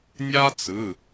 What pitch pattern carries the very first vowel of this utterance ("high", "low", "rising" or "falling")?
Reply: high